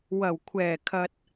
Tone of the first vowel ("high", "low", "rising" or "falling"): low